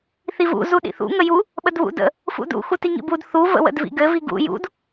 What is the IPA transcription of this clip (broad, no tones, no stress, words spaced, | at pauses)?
θivṵ zuɗḭθṵ ŋəju | ɓədβṵdə̰ | fṵdṵ xutiŋḭbud θu və̰wə̰dvḭɡɘ viɡṵ jṵd